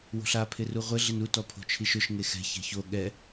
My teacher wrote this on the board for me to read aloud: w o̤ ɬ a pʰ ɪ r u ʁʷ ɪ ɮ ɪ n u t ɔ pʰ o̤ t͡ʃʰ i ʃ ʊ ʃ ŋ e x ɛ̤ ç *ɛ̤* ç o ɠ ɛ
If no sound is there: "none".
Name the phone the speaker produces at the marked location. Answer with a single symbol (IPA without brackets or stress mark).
ɛ̤